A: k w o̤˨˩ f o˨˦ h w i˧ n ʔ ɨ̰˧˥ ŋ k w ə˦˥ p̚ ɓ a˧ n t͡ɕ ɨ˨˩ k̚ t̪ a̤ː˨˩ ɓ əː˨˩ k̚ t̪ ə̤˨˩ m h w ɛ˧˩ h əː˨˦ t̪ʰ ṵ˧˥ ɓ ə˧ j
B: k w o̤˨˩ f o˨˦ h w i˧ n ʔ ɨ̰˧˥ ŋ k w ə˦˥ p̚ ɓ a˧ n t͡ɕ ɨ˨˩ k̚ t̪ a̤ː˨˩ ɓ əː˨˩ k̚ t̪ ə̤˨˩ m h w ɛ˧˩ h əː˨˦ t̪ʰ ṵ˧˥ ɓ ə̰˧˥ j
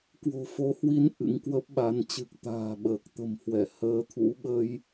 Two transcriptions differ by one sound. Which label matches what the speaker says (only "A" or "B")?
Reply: A